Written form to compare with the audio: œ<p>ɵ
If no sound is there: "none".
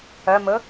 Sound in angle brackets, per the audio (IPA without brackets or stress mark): m